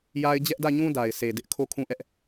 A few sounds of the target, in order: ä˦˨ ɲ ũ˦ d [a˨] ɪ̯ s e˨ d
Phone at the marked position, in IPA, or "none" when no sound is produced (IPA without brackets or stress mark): a˨